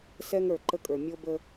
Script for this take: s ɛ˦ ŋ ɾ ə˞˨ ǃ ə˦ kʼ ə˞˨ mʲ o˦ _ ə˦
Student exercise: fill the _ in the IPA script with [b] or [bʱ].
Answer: b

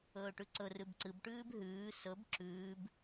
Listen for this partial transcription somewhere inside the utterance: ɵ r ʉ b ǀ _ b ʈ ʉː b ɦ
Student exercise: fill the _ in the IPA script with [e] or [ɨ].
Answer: ɨ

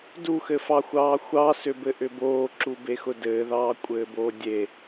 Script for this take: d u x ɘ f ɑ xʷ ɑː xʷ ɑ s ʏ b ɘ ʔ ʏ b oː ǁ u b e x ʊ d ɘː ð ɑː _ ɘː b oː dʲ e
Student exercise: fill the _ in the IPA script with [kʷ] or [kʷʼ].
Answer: kʷʼ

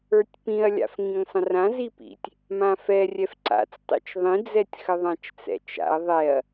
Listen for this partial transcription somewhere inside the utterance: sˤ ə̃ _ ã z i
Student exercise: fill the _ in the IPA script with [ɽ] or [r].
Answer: r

